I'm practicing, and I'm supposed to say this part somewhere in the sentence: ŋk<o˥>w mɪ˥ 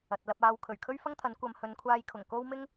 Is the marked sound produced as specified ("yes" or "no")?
yes